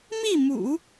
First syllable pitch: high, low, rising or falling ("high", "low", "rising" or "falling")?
falling